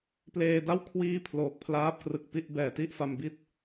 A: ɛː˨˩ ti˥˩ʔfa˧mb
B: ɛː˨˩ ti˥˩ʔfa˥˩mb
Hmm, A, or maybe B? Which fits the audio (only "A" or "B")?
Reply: A